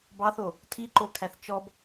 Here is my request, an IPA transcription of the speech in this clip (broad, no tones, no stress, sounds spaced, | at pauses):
b ɑ θ o | tʰ i ǃ o kʰ æ θ t͡ʃ ɔ b